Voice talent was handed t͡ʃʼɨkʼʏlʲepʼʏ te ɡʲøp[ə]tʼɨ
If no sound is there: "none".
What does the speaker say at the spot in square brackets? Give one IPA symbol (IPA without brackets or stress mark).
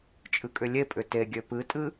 ɨ